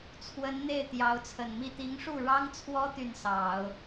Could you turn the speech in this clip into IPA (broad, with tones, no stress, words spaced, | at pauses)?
t͡sʰwə˧˥nn̪e˥˩ɪ̯ t̪jɑ˧˥ʊ̯t͡sʰə˨˩nmi˥˩ t̪i˧˥ŋʂu˥˩ɻɑ˥ŋt͡sʰwɔ˥ t̪y˥˩nsɑ˨˩˦ʊ̯